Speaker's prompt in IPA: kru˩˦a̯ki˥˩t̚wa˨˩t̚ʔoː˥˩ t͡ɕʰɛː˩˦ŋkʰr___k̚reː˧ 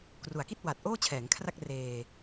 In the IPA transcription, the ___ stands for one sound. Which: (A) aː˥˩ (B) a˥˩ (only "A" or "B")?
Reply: B